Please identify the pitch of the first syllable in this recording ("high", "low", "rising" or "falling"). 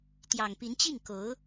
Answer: low